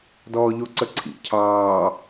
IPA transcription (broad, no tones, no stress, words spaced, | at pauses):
dɔːʎoǀəǀʰḭ cʰɑː